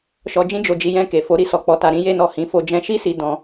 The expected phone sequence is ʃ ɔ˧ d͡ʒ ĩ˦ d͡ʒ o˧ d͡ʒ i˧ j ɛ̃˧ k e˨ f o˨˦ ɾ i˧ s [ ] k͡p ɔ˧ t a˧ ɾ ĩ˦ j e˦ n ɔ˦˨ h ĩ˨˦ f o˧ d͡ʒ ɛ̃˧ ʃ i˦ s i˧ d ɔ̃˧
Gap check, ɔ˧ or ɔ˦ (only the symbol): ɔ˧